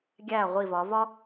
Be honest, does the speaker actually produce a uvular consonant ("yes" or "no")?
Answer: yes